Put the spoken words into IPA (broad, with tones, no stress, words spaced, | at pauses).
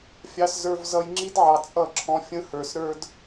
fʲɑ˦szə˞˦v zʌ˧jŋ͡ǁi˦dʕɑ˨ t͡sʼʌ˦˨ǁʰɔ̃˧fʲə̃˦hə˞˨s ɾə˞˦d